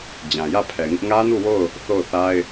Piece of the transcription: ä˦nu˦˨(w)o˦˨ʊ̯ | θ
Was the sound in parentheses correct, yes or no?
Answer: yes